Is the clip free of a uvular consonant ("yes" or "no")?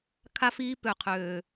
no